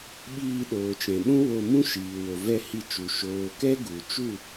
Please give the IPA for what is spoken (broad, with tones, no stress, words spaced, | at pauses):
ɓiː˧ɗoː˨t͡ʃɛ̃˨ɓũ˦ wo˧mũ˦ʃiː˨ wo˨vɛ˦˨hi˧t͡ʃu˨ ʃoː˨ kɛ˦ɡu˨ t͡ʃu˦˨